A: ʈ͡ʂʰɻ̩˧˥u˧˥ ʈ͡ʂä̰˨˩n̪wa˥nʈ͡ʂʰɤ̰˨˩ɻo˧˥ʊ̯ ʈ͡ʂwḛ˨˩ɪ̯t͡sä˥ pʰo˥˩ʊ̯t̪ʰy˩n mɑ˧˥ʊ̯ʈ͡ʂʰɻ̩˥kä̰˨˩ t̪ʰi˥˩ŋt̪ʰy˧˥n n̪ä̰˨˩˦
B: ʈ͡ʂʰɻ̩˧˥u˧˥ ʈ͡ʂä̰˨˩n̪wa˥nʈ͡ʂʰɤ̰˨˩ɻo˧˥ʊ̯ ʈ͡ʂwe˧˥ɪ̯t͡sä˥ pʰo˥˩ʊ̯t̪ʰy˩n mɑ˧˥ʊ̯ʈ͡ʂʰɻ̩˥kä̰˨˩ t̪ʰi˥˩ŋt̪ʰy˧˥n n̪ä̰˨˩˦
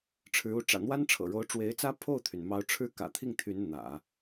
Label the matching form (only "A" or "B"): B